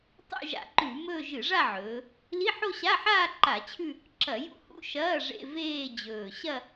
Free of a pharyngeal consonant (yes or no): no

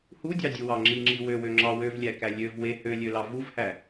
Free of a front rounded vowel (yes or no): no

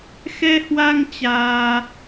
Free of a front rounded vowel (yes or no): yes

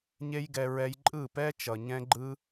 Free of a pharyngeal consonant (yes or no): yes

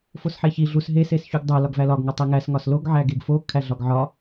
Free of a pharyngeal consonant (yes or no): no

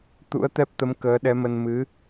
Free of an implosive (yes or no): no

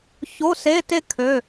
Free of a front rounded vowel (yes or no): no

